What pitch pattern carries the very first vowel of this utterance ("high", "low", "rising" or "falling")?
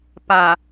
low